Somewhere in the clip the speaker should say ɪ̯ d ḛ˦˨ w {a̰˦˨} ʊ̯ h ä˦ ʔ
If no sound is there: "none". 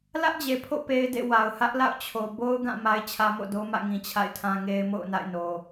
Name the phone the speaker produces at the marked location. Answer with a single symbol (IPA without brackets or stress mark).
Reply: a˨